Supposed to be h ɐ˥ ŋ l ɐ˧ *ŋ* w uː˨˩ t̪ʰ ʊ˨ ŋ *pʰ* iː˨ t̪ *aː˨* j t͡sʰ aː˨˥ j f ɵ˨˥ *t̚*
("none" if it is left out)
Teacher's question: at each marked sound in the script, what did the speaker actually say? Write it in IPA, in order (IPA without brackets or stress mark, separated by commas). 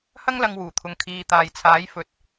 ŋ, kʰ, aː˨, t̚